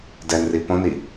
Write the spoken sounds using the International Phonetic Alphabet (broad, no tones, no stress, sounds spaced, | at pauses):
d ɛ n r i p õ n i